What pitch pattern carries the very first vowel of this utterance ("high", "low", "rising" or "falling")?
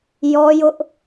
high